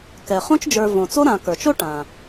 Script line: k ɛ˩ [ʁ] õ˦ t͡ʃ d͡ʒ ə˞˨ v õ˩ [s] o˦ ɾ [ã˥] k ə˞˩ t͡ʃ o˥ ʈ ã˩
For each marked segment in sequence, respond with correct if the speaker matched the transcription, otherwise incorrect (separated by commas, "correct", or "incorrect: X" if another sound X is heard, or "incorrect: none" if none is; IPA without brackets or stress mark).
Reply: incorrect: χ, incorrect: t͡s, incorrect: ã˨